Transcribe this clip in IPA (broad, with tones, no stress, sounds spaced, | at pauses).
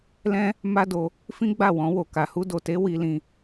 l ɛ̃˦ | m a˦ d o˧ | f ĩ˦ ɡ͡b a˦˨ w ɔ̃˧ w o˨ k a˨ h u˧ d o˨ t e˧ w i˧ l ĩ˧